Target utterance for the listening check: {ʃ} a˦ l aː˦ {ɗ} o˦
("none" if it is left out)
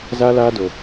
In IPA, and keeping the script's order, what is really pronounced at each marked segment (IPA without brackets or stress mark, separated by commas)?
z, d